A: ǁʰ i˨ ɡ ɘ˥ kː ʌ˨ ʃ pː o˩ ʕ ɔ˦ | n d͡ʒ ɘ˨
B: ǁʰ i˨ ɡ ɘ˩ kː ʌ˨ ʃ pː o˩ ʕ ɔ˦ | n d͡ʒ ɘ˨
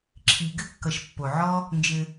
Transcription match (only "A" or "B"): A